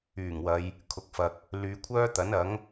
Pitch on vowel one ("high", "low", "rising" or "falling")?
low